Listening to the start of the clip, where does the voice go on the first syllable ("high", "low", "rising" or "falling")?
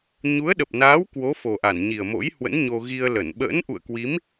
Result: rising